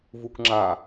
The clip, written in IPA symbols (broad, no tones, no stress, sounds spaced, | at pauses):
v u k ŋ͡ǁ a